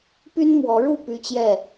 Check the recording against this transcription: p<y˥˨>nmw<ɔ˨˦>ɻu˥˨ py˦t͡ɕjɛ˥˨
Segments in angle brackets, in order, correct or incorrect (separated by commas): incorrect, correct